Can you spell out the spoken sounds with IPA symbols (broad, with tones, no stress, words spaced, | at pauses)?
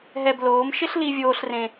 ɦɛ˧bloː˨˦m ʃɪ˦ɬli˧vʲoː˧ɬ rẽ˧